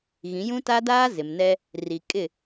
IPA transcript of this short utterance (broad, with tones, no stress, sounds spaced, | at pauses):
ɣ ĩ˨˦ j ũ˦ t a˦ d aː˦ z ɪ˨ m n ɛ˦ | r i˨ kʼ ɪ˦˨